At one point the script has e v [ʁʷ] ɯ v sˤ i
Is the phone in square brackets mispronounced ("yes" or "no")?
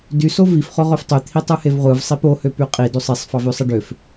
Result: no